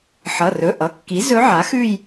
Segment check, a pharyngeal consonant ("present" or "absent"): present